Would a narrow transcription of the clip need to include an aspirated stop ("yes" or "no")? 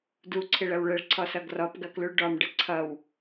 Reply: yes